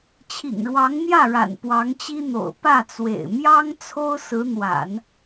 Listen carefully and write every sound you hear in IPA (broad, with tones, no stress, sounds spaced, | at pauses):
t͡ɕʰ ḭ˨˩ ŋ ɻ w ɑ˧˥ ŋ n̪ j ä˥˩ ɻ a̰˨˩ n p w ɑ˧˥ ŋ t͡ɕ i˥ n̪ o̰˨˩ ʊ̯ p ä˥˩ t͡s w ḛ˨˩ ɪ̯ m j ɑ˥ ŋ t͡sʰ o˥ ʊ̯ s ɹ̩˧˥ n̪ w a̰˨˩˦ n